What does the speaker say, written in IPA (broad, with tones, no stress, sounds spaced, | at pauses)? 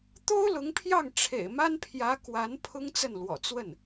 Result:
t̪ o˥ ʊ̯ l ʊ˧˥ ŋ pʰ j ɑ˥˩ ŋ ʈ͡ʂʰ ḛ˨˩ ɪ̯ m a˥ n pʰ j ä˧˥ k w a˧˥ n pʰ ʊ˥ ŋ t͡s ə˥˩ n l w ɔ̰˨˩ t͡s w ə˥˩ n